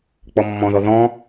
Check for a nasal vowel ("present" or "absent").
present